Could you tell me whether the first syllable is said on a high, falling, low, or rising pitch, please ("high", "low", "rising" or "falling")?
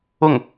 falling